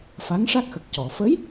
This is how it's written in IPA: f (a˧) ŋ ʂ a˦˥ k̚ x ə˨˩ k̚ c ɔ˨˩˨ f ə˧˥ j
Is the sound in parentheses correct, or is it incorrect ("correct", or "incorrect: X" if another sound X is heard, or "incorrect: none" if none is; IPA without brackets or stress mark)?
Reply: incorrect: a˧˥